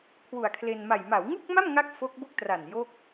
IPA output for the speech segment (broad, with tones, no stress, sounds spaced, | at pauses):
kʰ w u˨˩ a̯ kʰ l e˧ n m a˨˩ j m a˩˦ w ŋ u˥˩ k̚ m a˥˩ m ŋ a˥˩ k̚ f o˦˥ k̚ b o˥˩ k̚ t r a˨˩ n j o˥˩ k̚